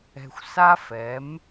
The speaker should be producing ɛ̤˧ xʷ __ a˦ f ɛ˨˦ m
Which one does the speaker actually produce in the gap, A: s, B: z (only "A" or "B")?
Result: A